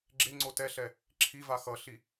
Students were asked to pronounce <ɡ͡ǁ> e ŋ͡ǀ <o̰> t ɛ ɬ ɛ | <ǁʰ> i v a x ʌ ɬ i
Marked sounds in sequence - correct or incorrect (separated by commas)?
correct, incorrect, correct